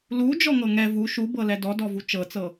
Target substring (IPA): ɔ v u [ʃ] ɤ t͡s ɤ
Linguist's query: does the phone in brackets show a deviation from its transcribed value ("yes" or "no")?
yes